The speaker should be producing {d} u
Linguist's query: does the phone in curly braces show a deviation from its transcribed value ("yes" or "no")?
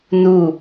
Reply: yes